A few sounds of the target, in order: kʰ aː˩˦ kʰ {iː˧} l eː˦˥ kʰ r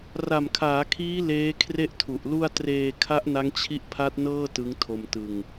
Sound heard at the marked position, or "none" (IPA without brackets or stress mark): iː˦˥